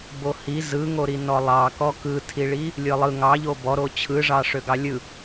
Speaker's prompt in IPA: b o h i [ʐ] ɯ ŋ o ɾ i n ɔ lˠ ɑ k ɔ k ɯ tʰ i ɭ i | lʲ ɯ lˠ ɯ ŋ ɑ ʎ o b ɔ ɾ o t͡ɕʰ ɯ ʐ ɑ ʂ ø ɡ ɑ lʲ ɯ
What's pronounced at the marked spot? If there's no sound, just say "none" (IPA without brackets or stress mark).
z